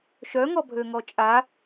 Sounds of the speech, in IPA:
ʃœŋɔbʱøŋɔ t͡ʃʼa

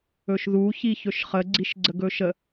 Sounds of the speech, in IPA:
ɵʃðu çiçɵʃχə ɡ͡ǀiʃɡ͡ǀəɡɵʃə

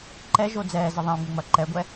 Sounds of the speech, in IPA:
ǃɛʒo d͡zɛːzə ðˤẽu̯ŋ͡mɪŋ͡mɐ ǃɛɡʷɛ

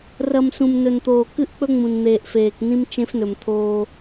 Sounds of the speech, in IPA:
rɐ˨m sũ˨mnɵ˨nt̪oː˨ kɨ˦ʔk͡pɵ˦ ŋ͡mũ˨nn̪eː˨ʔfeː˨knĩ˦m t͡ʃẽ˦fnɵ˨mt̪ʰoː˦

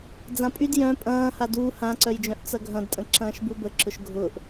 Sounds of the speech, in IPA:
d͡zãpʼyd jœ̃ pʼɐ̃ː haduː hãǀœjd͡ʒœ̃ʔ t͡sɐɡʱɐ̃dtʼə̃ǁɐ̃ːʃ bubəǁʊʃ ɡʱʊːʔ

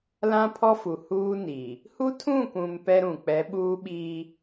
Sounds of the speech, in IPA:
lã˦pʰɔ˦fu˨ huː˦ni˨ | hu˦tʰũ˦˨kʷũ˨m pɛ˦ɾũ˨ k͡pɛ˨˦ɓuː˦ɓiː˦

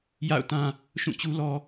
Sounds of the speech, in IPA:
ja̰˦˨ʊ̯tã˦ | ʃũ˦˨t͡ɕu˦lɔ˦

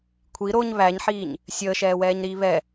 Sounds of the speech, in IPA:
kʷʰi ɾoɲ βæɲħiːɲ | sʲəːʃɛːwɛːɲɾiː βɛ

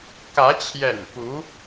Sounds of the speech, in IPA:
kä˧˥t͡ɕʰjɛ̰˨˩n pu˧˥

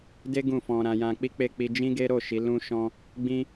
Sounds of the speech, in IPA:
de˦ ɡũ˦˨fɔ̃˧ɾã˧jã˧ k͡pi˦k͡pe˦˨ k͡pi˧d͡ʒĩ˦ɡe˦ ɾo˦˨ʃi˨˦ lũ˦ʃɔ̃˦ | ɡ͡bĩ˦

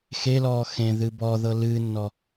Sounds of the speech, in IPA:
xelɔː xẽðɨ bɔðɤ lɨːnːɔ

